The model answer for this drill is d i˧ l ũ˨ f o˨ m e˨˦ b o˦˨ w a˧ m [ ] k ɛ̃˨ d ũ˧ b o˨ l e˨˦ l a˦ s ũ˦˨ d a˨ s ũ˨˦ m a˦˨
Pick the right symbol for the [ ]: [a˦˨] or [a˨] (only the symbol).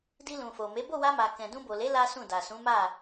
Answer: a˨